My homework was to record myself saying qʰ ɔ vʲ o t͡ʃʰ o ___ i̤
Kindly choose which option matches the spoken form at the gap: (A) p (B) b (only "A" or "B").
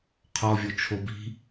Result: B